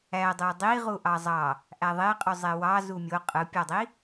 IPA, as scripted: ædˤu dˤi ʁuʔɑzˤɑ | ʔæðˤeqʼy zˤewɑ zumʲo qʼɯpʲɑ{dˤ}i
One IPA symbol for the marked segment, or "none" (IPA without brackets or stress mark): dˤ